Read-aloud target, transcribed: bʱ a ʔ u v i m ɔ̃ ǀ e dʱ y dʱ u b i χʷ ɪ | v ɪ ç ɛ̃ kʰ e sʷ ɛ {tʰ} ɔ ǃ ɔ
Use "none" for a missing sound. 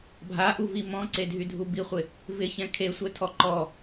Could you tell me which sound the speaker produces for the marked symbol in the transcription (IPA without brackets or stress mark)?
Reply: tʰ